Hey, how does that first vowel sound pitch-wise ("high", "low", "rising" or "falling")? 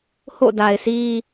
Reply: falling